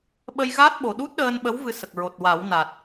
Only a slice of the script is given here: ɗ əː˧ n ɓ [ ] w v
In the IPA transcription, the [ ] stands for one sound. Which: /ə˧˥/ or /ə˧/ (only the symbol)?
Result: ə˧˥